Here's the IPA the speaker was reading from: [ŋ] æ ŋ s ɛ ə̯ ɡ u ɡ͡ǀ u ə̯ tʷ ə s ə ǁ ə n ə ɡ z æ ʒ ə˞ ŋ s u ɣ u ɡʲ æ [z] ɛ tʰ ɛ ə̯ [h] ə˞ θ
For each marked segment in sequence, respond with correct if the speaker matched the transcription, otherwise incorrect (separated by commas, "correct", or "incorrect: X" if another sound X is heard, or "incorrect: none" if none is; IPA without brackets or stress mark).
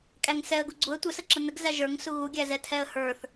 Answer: incorrect: kʼ, correct, correct